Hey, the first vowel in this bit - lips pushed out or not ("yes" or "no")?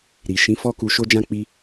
no